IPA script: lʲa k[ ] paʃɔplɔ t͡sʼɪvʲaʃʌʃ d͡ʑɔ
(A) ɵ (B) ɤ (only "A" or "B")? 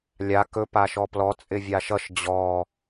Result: A